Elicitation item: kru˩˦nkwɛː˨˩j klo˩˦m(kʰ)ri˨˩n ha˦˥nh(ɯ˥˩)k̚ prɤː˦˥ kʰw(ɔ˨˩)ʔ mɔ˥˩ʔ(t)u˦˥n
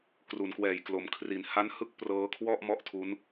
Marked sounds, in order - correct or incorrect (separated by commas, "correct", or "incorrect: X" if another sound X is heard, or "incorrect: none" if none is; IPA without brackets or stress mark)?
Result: correct, correct, incorrect: ɔ˥˩, incorrect: tʰ